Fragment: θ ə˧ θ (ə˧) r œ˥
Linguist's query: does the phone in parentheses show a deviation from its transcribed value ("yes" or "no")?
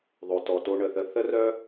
yes